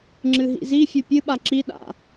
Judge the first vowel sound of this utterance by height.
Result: high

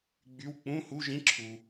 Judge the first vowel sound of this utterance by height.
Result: high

